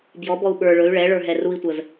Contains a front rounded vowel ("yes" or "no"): yes